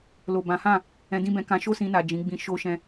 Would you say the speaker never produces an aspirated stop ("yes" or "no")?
yes